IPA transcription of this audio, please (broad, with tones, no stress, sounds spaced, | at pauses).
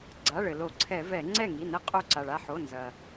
ɡ͡ǀ a˩˧˩ ɭ ɘ˩ l o˧˩˧ ǀʰ ɛ˧˩˧ v ɛ˧˩˧ ŋ͡ǀ ɛ˥˩ ŋ i˩˧˩ n ɘ˧ qʼ o˧˩ ǀ a˩ ɭ a˥˩ ħ o˩˧˩ n z ɐ˩